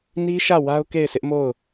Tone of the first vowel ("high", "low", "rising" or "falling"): high